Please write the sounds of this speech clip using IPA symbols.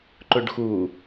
ǃ ʊ ɖ x u

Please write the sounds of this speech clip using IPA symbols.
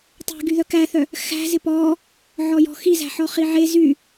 tˤ e̤ ɡ y ð œ k æ θ œ | x æ̤ z ɪ p ɔ | ʕ ɔ j ɔ̤ x i z æ̤ ħ ɔ χ i ʕ e z y

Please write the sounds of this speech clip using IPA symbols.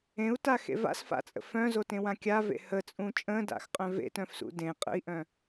ẽ u̯ t a x ḛ v a̰ s f a̰ t͡sʼ ə̰ f œ̃ z o t ẽ w ã kʲ a v ḛ h ə t͡sʼ ũ t͡ʃʼ ə̃ d a̰ x qʼ œ̃ v ḛ t œ̃ f s ṵ d ẽ qʼ ə̰ i̯ ʔ œ̃

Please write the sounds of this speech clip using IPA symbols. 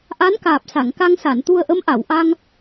ʔ a˧˥ n k aː˨˩ p̚ s a˨˩˨ ŋ k a˧ ŋ s a˨˩˨ n t̪ u˧ ə̯ ʔ ə˧˥ m ʔ a˨˩˨ w ʔ a˧ ŋ

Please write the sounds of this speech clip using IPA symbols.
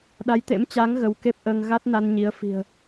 ɗ a˨˦ j t̪ ḛ˧˥ m t͡ɕ a˨˦ ŋ ɣ ə˨˦ w k e˦˥ p̚ ʔ əː˧ ŋ ɣ a˦˥ t̚ n a˧ n ɲ i˨˦ ə̯ f i̤˨˩ ə̯

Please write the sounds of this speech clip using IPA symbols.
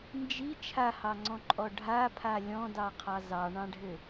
n d͡ʒ i t͡ʃʰ a h ɑ ŋ͡ǀ ɔ̃ ǃʼ ɔ ɖʱ a pʰ a lʲ ɔ̃ d ɑ qʰ ɑ z ɑ ɳ ɑ̃ ɖʱ ɘ

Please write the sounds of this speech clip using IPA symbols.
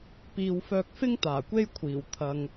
p iː˨ w f œː˧ k̚ f ɪ˥ ŋ t̪ aː˨˩ kʷ e˥ j kʷʰ iː˨˩ w t̪ʰ ɐ˨ ŋ

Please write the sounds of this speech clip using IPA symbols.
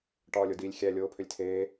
ʈ ɒː lʲ o d iː lʲ xʲ æ lʲ oː pʰ ø lʲ tʰ eː

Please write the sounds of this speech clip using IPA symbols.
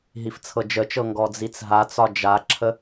ɦ i f t͡sʰ ɤ d͡ʒ ə t͡ʃ ɤ ŋ ɡ ɔ d͡z i t͡s ɦ a t͡s ɒ d͡ʒ a ǁʰ ə

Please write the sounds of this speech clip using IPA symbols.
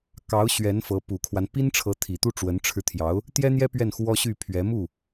k ɑ˧˥ ʊ̯ ɕ ɥ ɛ˧˥ n f ɤ˧˥ p u˨˩ kʰ w a˦ n p i˥ n ʈ͡ʂʰ ɤ˧˥ t̪ʰ i˨˩ t̪ u˥˩ ʈ͡ʂ w ə˧˥ n ʈ͡ʂʰ ɻ̩˧ t̪ʰ j ɑ˧˥ ʊ̯ | t̪ j ɛ˥ n̪ j ɛ˥ p ɥ ɛ˥˩ n x w ɔ˥ ɕ y˥˩ pʰ ɥ ɛ˧˥ m u˥˩

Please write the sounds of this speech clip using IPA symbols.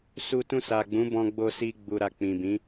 s u˧ t ũ˧ s a˨ ɡ͡b ũ˨˦ b ɔ̃˧ ɡ͡b o˧ s i˧ ɡ͡b u˨ ɾ a˨ k͡p ĩ˨ b ĩ˨˦

